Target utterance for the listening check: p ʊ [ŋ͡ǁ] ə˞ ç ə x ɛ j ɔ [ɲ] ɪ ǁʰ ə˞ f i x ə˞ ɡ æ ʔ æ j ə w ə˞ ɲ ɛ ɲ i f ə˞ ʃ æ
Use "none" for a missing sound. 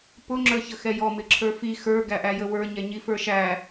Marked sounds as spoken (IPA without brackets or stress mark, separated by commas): ŋ͡ǁ, m